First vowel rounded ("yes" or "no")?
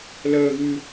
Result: no